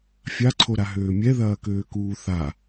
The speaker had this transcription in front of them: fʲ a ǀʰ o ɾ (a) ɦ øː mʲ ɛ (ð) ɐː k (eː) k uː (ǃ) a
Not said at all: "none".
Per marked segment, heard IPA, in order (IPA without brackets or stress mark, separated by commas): a, ð, øː, θ